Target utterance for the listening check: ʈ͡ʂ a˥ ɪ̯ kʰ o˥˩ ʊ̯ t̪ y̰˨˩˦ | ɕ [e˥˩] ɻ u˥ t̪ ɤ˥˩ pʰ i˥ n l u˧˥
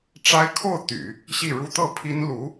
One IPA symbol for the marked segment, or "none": i˥˩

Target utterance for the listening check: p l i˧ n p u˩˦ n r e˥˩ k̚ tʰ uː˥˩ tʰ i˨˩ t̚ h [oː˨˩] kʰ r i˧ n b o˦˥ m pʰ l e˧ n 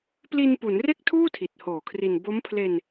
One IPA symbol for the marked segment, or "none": oː˨˩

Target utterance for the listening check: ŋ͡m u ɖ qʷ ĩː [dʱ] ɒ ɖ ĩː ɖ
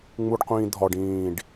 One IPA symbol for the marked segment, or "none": dʱ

